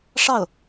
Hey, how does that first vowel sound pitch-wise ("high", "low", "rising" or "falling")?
falling